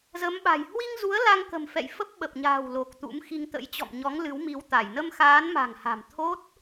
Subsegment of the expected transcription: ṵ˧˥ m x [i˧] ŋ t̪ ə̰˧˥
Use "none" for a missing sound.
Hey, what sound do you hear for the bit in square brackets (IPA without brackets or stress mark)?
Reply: i˧